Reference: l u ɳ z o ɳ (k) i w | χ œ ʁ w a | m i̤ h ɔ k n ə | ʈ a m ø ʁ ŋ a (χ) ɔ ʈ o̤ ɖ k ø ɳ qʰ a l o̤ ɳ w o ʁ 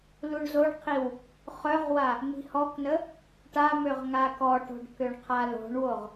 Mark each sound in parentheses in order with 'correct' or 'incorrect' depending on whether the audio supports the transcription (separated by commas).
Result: incorrect, incorrect